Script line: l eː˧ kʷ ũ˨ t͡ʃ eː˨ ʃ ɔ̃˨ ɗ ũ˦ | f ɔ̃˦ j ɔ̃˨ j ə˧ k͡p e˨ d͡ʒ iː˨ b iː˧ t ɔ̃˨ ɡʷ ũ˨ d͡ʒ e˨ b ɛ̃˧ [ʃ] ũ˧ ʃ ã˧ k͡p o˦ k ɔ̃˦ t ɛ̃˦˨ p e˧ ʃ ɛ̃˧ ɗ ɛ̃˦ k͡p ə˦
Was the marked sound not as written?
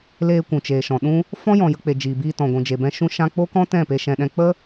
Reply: no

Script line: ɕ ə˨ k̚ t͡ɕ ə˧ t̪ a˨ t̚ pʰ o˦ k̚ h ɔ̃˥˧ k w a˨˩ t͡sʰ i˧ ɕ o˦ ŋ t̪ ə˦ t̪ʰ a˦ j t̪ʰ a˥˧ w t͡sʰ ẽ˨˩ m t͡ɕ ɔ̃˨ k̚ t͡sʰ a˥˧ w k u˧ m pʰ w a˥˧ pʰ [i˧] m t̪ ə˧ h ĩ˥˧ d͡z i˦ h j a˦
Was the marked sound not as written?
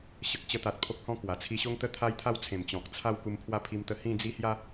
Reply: no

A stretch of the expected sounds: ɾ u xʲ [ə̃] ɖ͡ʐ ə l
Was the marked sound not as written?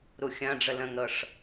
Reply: yes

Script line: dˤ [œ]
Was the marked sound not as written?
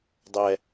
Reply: yes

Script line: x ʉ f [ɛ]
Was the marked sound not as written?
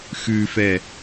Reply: no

